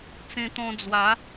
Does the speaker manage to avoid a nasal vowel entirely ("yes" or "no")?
no